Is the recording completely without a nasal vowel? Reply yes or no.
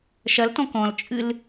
no